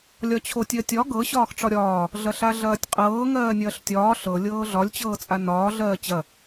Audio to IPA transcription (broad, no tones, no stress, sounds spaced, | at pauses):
lʲ ɒ t͡ɕʰ o tʲ ɜ tʲ ɒ ɡ ɤ ɕ ɒː x ʈ͡ʂ ɒ ɾʲ ɒː | ɮ ɐ ɬ a ɮ ɐː tʲ qʼ ɤː ŋ ɜː nʲ ɐː ɬ tʲ ɒː ɬ ɤ lʲ ɤː ɮ ɒ lʲ t͡ɕ ɤː t͡sʼ a n ɒː ɮ ɜː t͡ɕ ɐ